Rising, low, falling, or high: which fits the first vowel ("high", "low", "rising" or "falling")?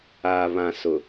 low